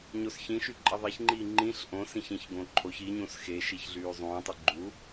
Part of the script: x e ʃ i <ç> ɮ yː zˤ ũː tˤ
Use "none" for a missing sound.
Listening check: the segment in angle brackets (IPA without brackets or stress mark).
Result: ç